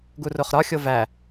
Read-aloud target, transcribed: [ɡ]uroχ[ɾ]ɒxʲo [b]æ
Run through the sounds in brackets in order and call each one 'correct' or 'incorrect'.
correct, correct, incorrect

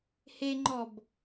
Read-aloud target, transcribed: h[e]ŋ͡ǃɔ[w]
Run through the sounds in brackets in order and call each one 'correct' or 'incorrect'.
correct, incorrect

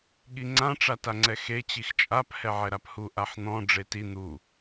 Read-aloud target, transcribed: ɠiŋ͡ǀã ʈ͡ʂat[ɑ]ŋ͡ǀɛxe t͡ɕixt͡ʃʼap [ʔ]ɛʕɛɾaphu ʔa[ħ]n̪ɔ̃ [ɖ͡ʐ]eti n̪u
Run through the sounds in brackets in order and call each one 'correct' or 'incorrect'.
incorrect, incorrect, correct, correct

